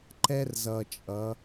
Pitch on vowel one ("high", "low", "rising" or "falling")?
high